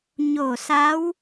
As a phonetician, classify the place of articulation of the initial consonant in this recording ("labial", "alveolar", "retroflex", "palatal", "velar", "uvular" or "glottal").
palatal